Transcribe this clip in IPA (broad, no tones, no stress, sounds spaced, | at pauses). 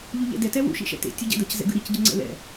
ʎ u ʎ ɛ̰ d ɛ t ɛ w ṵ ʃ ḭ ʃ ɛ̰ t ḛ tʲ u ɟ ɛ̰ d ʌ c z ɛ̰ ɡ ɯ ɾ i c ɟ ɯ ŋ͡ǀ ɛ̰ l ɛ̰